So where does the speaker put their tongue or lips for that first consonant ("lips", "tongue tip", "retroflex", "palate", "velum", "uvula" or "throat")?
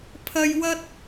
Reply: lips